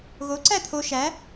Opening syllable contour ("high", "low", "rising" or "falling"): rising